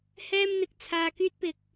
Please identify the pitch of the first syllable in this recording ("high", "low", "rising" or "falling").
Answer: high